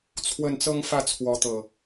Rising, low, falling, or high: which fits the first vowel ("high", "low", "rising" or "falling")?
falling